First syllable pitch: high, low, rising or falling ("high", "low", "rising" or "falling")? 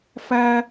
high